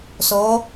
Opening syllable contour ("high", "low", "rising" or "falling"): rising